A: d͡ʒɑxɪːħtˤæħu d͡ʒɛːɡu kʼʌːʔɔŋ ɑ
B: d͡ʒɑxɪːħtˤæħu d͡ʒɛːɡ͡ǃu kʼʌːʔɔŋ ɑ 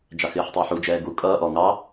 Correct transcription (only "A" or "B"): A